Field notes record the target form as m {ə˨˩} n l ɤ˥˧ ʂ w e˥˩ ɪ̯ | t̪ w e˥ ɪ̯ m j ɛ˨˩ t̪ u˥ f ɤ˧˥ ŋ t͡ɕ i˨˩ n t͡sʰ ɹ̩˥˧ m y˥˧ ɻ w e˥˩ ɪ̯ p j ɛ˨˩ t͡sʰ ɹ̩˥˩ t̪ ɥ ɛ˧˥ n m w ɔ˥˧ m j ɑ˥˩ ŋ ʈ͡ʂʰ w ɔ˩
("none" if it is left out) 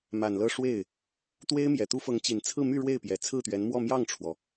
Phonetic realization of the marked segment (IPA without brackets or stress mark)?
a˨˩